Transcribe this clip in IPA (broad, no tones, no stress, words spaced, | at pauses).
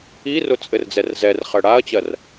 irʊ t͡sʼɘrd͡zɛrzɛrχɜ ɽaɐ̯t͡ɕɜr